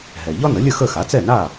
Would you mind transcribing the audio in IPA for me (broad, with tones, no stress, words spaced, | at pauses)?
ɦɛ˩ ʎɒ˥nə˩˥lʲə˥˩ xə˥˩ xa˩˥t͡sɛ˥˩na˥˩